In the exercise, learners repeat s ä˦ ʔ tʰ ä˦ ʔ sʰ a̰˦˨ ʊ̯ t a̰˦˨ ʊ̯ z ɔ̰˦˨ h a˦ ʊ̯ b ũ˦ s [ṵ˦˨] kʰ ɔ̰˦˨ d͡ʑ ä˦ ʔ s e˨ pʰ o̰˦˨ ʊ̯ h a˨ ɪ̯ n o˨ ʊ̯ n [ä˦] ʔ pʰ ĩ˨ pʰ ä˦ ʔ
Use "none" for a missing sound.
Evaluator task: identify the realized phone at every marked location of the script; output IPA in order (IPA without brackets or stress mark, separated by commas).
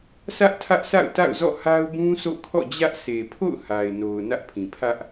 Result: o̰˦˨, ä˦